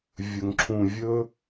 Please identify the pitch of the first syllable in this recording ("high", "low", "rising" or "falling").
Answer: low